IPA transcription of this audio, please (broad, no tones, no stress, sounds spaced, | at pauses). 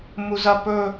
m u z ɐ p ɵ